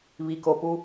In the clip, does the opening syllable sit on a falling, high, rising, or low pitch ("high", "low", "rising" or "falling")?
low